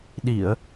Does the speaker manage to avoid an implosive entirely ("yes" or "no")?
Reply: no